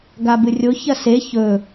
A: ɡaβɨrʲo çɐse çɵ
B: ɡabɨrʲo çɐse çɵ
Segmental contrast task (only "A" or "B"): B